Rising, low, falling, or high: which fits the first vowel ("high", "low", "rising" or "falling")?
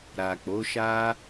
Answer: low